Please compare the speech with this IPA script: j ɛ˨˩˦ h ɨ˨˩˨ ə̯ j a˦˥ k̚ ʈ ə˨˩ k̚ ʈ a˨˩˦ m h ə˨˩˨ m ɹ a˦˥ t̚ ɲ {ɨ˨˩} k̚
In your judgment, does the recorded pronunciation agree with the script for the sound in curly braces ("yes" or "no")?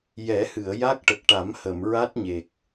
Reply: no